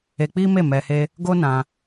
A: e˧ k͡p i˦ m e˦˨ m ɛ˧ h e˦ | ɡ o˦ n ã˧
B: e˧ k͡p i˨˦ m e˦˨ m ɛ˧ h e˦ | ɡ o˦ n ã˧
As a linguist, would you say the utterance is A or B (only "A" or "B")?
A